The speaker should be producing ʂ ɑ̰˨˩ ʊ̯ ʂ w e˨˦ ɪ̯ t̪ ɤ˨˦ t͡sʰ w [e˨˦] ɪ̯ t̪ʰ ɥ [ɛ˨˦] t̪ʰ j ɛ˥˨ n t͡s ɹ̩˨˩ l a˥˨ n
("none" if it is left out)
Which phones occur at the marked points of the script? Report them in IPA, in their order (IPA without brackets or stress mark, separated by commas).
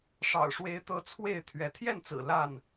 e˥˨, ɛ˨˦